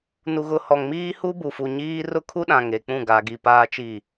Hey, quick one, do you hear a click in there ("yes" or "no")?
no